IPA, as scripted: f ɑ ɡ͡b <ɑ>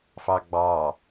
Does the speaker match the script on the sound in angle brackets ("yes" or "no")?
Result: yes